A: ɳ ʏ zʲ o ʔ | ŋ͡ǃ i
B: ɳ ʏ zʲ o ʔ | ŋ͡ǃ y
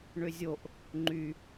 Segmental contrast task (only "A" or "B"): B